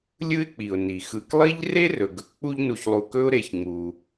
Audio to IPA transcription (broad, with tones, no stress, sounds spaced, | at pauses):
lʲ ɯ˦ ɪ̯ k͡p i˩ ʊ̯ n i˩ x ɯ˨ k lˠ i˥ ʎ r e˥ r ɵ˩ ɡ ɵ˩ k k͡p u˦ ʎ n u˨ ç lˠ u˨ k ɵ˥ ʊ̯ ɾ e˨ ç ŋ͡m u˩